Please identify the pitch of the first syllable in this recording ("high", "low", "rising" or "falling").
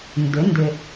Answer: rising